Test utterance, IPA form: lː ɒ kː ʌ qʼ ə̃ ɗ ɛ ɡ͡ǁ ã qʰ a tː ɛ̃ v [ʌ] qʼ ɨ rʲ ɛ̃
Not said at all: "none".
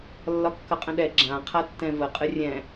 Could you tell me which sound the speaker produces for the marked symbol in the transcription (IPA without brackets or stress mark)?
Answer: ə